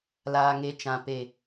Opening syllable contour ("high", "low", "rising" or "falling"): low